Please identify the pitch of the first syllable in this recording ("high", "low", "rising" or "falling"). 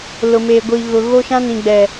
low